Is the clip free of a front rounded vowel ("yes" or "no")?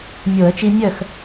no